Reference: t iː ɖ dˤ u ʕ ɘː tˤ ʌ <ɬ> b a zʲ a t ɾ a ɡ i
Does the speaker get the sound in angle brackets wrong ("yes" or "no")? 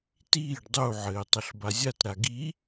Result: no